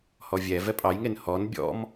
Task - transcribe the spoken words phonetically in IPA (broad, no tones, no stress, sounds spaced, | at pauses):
h ɔ vʲ ɛ v ɛ pʼ ɑ j ŋ e n h ɔ n bʲ ɔ̰ m